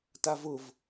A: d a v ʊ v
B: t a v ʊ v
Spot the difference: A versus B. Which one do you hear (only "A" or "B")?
B